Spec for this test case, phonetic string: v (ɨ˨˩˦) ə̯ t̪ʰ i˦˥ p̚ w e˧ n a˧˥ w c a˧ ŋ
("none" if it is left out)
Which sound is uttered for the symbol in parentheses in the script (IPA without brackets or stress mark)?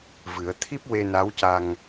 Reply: ɨ˨˩˦